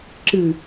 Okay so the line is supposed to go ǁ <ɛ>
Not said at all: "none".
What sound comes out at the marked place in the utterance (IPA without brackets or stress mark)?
ɨ